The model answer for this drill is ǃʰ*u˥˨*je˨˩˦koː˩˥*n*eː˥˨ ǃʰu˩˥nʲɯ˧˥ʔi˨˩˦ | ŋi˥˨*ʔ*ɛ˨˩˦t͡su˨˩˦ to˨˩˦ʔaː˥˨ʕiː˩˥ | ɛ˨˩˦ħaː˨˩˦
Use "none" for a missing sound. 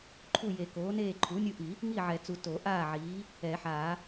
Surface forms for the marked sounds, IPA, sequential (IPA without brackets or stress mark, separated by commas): u˥˨, n, ʕ